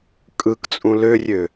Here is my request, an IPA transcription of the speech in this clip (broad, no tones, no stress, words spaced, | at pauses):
kʼɯkt͡sʼũ lørʲø